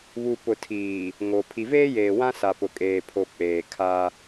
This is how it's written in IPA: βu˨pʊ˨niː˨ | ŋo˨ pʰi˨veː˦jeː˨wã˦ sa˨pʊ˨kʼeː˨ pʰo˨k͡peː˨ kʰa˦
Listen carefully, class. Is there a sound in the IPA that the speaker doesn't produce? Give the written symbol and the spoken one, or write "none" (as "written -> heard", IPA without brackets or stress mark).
n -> tʰ